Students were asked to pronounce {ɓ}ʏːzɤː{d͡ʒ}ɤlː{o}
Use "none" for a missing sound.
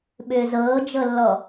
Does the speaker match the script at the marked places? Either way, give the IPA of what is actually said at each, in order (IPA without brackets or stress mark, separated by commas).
ɓ, d͡ʒ, ɔ